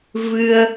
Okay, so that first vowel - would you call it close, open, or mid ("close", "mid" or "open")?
close